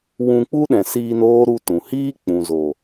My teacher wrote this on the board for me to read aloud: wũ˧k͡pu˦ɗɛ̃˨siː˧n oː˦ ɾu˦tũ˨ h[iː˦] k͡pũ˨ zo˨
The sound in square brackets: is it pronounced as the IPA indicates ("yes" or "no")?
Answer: yes